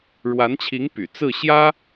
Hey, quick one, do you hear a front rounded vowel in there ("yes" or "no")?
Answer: yes